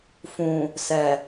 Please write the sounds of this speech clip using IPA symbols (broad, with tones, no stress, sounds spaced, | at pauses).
f ũ˨ | s ɛ˨